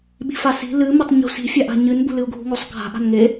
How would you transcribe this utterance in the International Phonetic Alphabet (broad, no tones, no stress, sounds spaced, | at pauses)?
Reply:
ɓ i̤ f a s i̤ l ɨ m e tˤ ɲ ṳ s i̤ fʲ a ʔ a̤ ɲ ɨ n b ṳ l ɨ u̯ ɡʱ ṳ ŋ o sˤ ɡʱ a̤ ʔ a̤ n ŋ e